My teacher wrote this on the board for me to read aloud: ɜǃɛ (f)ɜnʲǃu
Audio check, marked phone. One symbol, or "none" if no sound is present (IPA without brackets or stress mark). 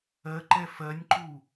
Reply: f